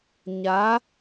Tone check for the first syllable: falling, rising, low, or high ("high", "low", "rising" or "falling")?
rising